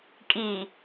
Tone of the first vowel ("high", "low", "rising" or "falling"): low